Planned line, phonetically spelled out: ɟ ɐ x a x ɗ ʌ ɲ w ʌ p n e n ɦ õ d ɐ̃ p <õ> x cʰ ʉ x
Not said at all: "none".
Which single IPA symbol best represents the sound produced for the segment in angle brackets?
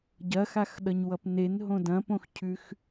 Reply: õ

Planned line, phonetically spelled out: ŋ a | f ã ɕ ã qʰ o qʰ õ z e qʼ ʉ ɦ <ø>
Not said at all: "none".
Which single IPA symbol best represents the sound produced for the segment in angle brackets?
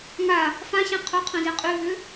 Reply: ø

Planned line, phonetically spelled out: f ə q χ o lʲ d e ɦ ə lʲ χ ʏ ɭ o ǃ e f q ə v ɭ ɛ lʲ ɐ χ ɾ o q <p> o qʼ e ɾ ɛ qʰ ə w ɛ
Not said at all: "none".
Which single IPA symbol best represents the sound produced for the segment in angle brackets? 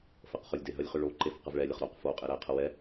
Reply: f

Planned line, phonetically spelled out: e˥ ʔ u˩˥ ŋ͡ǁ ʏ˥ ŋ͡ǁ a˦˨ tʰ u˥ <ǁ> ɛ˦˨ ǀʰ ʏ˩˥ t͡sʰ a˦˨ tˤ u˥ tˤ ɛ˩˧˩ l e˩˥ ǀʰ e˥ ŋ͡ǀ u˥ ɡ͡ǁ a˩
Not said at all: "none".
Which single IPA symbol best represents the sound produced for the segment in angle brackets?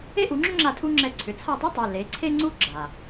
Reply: ŋ͡ǁ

